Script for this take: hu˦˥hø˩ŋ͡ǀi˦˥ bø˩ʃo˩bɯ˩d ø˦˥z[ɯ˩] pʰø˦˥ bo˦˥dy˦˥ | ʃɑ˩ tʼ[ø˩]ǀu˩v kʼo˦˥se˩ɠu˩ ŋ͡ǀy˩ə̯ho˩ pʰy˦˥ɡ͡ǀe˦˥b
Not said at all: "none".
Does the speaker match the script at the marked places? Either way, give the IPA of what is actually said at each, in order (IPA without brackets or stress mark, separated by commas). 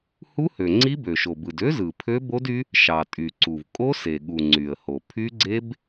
ɯ˩, y˩